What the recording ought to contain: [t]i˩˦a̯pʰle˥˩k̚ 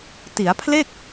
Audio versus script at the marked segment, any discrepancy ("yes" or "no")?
no